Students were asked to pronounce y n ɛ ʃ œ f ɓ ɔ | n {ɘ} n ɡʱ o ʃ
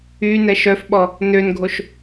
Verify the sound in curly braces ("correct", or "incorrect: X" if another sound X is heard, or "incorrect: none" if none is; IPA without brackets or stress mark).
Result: incorrect: ø